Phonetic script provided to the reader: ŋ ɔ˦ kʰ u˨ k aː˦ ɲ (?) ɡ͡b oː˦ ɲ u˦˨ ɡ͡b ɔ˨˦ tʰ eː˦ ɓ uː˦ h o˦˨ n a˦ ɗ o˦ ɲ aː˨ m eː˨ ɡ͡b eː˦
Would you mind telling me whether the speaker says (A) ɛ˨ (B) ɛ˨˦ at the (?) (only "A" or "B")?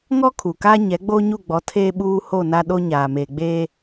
B